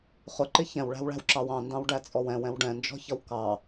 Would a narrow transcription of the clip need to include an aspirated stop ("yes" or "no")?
no